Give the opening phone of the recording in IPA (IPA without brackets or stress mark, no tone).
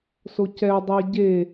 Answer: s